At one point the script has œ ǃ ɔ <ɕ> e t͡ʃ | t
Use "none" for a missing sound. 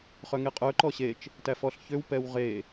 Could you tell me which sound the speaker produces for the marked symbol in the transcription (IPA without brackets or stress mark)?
ɕ